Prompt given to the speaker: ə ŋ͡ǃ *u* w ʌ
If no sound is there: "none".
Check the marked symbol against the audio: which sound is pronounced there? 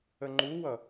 u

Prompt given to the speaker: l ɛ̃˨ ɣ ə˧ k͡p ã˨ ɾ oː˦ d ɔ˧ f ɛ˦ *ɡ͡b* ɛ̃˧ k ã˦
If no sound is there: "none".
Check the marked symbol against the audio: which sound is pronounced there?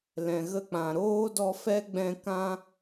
ɡ͡b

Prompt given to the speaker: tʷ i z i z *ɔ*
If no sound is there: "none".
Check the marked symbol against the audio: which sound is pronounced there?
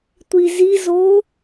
o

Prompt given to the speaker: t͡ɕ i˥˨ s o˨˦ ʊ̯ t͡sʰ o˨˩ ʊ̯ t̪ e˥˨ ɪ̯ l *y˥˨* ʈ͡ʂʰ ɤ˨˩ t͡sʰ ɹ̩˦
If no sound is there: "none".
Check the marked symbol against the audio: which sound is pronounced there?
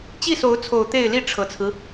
i˥˨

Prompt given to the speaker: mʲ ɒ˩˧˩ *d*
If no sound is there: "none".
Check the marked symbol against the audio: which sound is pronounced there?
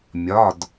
d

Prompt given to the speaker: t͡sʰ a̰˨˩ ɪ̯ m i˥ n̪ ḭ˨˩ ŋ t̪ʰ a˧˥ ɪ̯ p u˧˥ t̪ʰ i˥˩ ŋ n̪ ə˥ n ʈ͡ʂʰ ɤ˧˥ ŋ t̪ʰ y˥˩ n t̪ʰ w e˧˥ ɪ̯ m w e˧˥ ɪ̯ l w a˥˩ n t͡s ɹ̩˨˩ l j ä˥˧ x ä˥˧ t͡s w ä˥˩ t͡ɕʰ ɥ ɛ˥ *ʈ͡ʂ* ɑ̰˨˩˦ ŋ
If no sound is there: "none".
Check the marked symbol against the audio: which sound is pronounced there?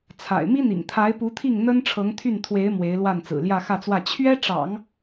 ʈ͡ʂ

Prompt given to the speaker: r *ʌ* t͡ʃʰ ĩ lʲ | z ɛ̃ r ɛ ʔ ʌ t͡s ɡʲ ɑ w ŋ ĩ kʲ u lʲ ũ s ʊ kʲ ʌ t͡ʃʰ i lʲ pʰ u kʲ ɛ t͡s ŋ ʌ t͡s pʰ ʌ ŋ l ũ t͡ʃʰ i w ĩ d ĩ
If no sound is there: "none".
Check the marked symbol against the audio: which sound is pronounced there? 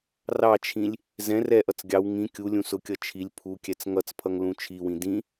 ɑ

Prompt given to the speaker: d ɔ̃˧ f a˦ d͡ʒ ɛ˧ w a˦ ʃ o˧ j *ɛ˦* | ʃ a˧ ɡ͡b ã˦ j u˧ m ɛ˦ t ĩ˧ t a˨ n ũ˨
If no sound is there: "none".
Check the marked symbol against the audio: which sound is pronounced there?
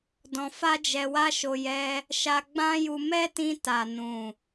ɛ˦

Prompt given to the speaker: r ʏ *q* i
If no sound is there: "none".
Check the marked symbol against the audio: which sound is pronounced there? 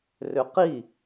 q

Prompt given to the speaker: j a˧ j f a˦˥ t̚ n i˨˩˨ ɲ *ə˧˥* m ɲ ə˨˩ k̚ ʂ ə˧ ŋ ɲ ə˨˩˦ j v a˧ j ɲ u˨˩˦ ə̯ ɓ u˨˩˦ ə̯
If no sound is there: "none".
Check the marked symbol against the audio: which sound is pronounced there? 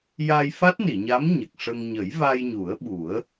a˧˥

